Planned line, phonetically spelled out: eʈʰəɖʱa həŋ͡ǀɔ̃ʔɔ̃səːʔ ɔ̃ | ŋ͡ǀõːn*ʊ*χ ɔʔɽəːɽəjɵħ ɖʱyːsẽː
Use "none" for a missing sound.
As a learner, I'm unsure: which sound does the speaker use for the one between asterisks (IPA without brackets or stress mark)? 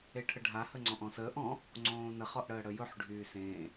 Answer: ə